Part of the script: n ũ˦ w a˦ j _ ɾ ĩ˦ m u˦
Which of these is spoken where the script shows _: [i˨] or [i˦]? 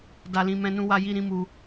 i˦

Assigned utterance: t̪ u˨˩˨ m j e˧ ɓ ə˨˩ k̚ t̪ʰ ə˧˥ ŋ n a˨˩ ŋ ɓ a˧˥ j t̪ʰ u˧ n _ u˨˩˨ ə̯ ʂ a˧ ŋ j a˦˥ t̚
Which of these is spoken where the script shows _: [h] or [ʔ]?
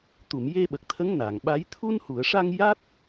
h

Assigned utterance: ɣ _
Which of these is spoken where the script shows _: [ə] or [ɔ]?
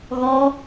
ɔ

